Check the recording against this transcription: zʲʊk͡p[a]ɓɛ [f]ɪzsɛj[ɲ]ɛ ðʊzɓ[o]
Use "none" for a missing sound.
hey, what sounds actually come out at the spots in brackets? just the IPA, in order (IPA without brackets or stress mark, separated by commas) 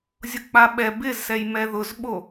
a, b, m, o